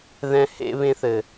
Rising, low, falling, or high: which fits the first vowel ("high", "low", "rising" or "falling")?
high